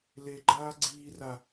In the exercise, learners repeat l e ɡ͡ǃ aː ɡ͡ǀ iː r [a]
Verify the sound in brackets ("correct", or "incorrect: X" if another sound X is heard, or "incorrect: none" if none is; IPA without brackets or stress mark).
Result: correct